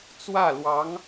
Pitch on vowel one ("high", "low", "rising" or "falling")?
falling